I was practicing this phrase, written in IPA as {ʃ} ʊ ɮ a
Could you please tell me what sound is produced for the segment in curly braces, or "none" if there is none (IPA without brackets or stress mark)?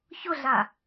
ç